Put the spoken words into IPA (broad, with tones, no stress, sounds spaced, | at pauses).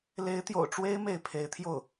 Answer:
l e˧˥ ɪ̯ t̪ j o̰˨˩ ʊ̯ ʈ͡ʂ w e˥ ɪ̯ m e˥˩ ɪ̯ pʰ e˧˥ ɪ̯ t̪ʰ j o˥˩ ʊ̯